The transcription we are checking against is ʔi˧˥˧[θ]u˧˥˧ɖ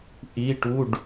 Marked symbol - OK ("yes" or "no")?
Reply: no